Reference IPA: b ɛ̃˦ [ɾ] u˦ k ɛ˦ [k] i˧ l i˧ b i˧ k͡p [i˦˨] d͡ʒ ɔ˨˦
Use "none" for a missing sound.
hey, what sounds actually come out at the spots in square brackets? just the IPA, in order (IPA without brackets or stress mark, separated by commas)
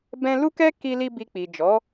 l, k, i˨